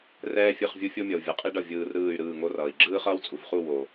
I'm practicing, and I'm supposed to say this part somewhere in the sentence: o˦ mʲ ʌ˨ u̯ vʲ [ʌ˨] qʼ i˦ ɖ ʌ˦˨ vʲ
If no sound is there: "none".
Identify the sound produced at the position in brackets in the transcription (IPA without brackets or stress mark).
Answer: ʌ˨